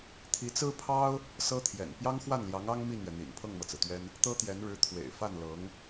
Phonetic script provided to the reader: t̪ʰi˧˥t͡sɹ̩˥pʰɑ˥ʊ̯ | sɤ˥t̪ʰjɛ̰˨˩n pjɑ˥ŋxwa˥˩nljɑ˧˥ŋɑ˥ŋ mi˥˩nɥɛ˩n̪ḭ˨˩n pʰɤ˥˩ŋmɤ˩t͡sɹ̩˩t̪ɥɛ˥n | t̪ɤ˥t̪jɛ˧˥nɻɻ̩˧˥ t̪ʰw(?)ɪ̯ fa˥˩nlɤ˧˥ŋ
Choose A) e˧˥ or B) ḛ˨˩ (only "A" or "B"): B